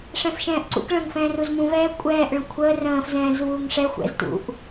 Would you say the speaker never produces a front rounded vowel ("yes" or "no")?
yes